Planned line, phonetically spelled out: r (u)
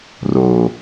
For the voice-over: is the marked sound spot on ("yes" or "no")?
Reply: no